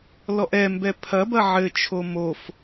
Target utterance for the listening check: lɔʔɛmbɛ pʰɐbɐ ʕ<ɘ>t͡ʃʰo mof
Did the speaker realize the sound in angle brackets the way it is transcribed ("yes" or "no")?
yes